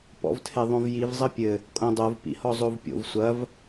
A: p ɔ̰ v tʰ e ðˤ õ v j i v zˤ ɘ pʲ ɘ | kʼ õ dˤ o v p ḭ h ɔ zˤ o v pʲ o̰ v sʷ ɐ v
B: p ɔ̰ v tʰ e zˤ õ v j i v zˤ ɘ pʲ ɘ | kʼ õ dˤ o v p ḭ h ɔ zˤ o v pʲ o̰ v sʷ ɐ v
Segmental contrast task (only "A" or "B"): A